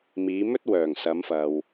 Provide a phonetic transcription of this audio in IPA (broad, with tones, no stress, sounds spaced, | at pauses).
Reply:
m iː˨˧ m ɵ˥ t̚ w œː˨˩ ŋ s ɐ˨˧ m f ɐ˨ w